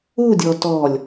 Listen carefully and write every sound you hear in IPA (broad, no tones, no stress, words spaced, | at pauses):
uːdʲɔː tɔlʲ